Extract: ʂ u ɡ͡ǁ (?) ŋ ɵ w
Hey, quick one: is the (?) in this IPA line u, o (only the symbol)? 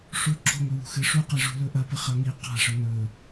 o